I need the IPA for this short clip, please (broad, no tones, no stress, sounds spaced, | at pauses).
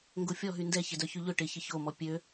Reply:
ŋ ɡ o fʲ ɔ ɦ y n d ɛ ç ɪ d œ ç y ʎ ʊ ʈ ɪ ç ɪ ç o m ɔ pʲ ø